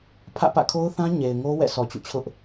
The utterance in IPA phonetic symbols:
pʰä̰˦˨pä̰˦˨kʰo˦ʊ̯θã˦ ɲe˨ɪ̯ŋo˦ wɛ̰˦˨sʰɔ˨t͡ɕṵ˦˨t͡ɕʰʊ˦ʔ

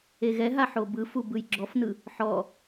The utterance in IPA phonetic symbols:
eɣɛɦa ħobɯfu bɯjɡ͡ǁɔfnɯ | ħɔ

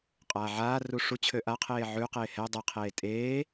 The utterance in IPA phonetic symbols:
qʼaːʕaːru ʂut͡ɕʰø ʔaqʰeː ʕʉqeː hɛ dˤɘqʰeː tʼeː

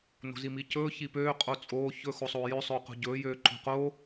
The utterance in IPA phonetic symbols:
no̤zimicɵː çipøː qʼot͡sʼoː çɵ xosˤoːjø sˤɵːqo̤ɟɵː jøːǃo̤qo

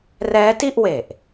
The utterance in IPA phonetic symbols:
rɛː˦˥ti˥˩ʔwe˨˩ʔ

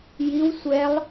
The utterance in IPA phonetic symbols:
jiw sʷɛlˠ

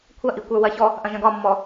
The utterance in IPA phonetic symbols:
kʷʰɐʔikʷə˞ wɐçɔ | ʔɐ̃ʒɐ̃ɡɒmːɔ

